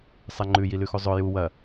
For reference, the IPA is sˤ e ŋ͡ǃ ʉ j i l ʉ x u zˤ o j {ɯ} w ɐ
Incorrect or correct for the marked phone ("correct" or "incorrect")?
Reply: incorrect